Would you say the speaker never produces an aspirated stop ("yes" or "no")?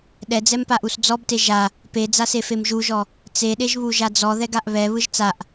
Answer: yes